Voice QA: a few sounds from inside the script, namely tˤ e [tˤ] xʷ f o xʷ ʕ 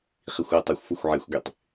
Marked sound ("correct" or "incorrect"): incorrect